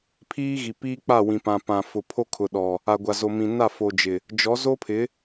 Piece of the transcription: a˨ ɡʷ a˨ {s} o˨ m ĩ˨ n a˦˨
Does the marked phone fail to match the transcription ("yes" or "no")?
yes